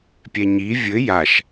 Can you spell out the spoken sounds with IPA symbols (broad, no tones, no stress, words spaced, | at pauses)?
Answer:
pʲɛɲi vʲɘ jaʃ